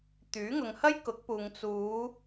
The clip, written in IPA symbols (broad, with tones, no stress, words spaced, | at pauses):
t̪yː˨˥ ŋʊ˨ŋhɐ˥j kʊ˨˥k̚puː˨ŋ t͡suː˨˧